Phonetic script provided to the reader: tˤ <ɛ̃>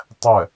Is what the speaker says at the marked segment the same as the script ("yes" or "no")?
no